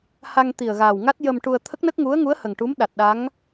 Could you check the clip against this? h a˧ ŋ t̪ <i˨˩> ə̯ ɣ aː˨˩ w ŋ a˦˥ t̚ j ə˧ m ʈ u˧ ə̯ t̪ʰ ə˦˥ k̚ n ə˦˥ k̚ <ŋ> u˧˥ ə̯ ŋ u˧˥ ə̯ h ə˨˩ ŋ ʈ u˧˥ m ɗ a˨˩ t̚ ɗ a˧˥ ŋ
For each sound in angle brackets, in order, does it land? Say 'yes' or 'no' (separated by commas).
yes, yes